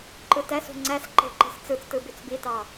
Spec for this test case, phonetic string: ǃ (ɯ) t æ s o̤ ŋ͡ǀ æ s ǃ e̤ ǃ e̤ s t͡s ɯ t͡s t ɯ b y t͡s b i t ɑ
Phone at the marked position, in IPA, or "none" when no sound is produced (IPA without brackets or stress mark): ɯ